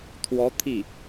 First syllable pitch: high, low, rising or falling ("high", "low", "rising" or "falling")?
rising